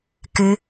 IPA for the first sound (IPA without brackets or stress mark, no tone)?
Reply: k